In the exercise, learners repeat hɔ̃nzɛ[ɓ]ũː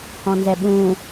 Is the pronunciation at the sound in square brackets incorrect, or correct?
correct